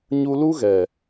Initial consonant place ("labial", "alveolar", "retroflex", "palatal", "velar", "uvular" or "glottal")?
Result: palatal